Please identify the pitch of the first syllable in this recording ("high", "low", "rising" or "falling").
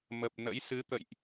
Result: low